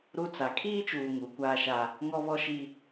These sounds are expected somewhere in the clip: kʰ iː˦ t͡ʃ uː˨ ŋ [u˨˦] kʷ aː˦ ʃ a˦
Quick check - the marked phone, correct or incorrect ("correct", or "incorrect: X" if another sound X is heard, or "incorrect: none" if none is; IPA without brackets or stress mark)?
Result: correct